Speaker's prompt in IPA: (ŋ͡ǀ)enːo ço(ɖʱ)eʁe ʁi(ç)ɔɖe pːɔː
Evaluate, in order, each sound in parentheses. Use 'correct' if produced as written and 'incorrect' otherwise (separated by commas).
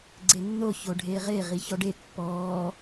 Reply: incorrect, correct, correct